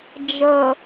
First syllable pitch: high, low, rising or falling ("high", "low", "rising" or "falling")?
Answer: low